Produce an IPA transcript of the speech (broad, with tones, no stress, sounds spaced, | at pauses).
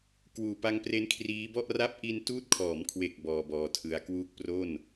k w uː˨˩ p a˧ ŋ p r e˦˥ n kʰ r iː˦˥ b ɔ˥˩ ʔ r a˥˩ p̚ ʔ i˧ n t uː˦˥ t̚ kʰ ɔː˩˦ m kʰ w e˨˩ k̚ b ɔː˧ b ɔː˧ tʰ ɯ˧ a̯ k w uː˦˥ k̚ p r o˥˩ n